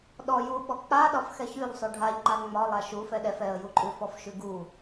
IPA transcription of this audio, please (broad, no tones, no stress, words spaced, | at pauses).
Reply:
ɗɔ juɓɔ k͡paɗɒf xɛçʉʎsˤʉ ɖʱaʎŋ͡ǃa ŋ͡mɒlˠa ʃu fɛɗɛf ɛə̯juǃʼʉ fɔfʃʉɡu